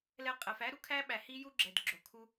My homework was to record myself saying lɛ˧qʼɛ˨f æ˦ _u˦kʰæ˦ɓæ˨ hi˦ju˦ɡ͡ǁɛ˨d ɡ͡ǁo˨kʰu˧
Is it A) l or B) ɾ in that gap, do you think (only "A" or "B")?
B